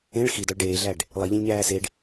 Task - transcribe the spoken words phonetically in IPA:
ẽ ɭ x i d ɒ ɭ ɖ eː ɮ æ ɖ | lˠ i ʎ ẽ lʲ ɲ æː s e ɖ

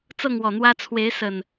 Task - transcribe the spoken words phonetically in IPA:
t͡s ɤ˥˨ ŋ w ɔ˨˩ n̪ w ä˦ t͡sʰ w e˨˦ ɪ̯ s ə˨˩ n

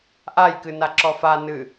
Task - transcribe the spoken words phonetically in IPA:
ʔ a j k ɨ n a ǁ ɔ f a n ɨ

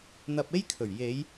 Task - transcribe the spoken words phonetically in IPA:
n̪ ɐ˧ p̚ e˥ j kʰ ɵ˨˩ ɥ j e˨˧ j

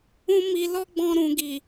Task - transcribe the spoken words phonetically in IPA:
ũ˦ m i˧ l ɔ˦ ɡ͡b ɔ̃˧ ɾ ũ˨ ɡ i˨

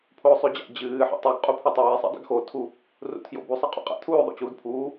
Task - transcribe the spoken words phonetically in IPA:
pʰ oː sˤ ʉ d͡ʑ a̰ d͡ʑ ɨː ħ ḛ tˤ u ɡ qʼ u pʰ ʉ tˤ a j i sˤ ḭ dˤ ṵ ɡ x o tʰ u | r ṵ tʰ j o̰ b u sˤ ɐ qʼ ṵ qʼ a̰ tʰ uː y̯ ðˤ o̰ t͡ɕ uː d pʰ uː

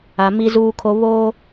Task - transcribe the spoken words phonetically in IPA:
a˨ m i˦ z uː˦ kʰ o˦ β o˦

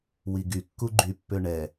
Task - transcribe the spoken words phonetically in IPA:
w i ɡ y kː u ɡ͡ǃ y pː ø ɳ ɛ

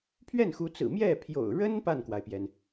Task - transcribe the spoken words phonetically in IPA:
pʰ ɥ ɛ˥˩ n x u˧˥ t͡s ɹ̩˨˩ m j ɛ˥˩ pʰ j o̰˨˩ ʊ̯ ɻ ə˥ n p a˥˩ n k w a˩ ɪ̯ p j ɛ˩ n

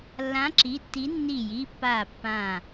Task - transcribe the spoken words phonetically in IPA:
lː ã˨˥ ǁ i˩˧˩ tː i˨˥ nː i˧˩ j i˩˧˩ pː aː˧˩ pː ã˧˩

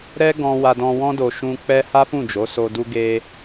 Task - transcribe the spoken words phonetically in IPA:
ɾ ɛ˦ ɡ ɔ̃˧ w a˧ d ɔ̃˧ w ɔ̃˦ d o˧ ʃ ũ˧ k͡p ɛ˦ h a˦ f ũ˦˨ d͡ʒ o˨˦ s o˧ d u˧ ɡ e˧

